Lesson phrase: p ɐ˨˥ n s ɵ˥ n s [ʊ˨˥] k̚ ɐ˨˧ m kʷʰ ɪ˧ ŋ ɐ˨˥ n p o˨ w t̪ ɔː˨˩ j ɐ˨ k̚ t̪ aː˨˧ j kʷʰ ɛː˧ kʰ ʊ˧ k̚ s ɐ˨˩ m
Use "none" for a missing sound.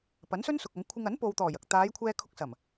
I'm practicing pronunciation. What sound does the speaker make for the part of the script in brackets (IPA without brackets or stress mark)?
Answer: ʊ˨